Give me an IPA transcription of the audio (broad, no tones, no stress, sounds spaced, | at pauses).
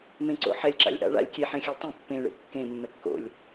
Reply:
m ẽ ǀ o̰ ħ ɛ lʲ ǁ a̰ lʲ ʔ a̰ ɭ a̰ lʲ kʲ e ħ ẽ xʲ a lʲ tˤ ẽ pː ẽ ɭ ḛ kː ẽ mː ɛ kː o̰ lʲ